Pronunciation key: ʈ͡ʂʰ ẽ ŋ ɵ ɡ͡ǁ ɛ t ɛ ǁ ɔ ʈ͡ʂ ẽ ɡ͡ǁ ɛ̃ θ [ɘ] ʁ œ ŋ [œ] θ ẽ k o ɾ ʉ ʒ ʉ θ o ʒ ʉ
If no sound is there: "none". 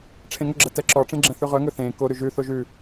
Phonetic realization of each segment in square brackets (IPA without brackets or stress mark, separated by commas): ʉ, ɵ